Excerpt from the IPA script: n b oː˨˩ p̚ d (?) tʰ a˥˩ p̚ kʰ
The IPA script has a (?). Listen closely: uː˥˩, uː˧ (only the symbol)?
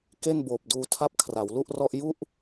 uː˧